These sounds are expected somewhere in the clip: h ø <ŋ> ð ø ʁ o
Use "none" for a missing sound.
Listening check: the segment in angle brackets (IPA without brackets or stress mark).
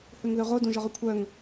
ŋ